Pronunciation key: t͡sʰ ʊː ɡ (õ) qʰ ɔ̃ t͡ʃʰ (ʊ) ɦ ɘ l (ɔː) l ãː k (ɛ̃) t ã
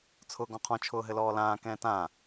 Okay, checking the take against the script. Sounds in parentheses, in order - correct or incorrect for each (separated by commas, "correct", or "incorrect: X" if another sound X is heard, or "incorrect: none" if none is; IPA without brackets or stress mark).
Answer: incorrect: ɔ̃, incorrect: ʊː, correct, incorrect: ɛ̃ː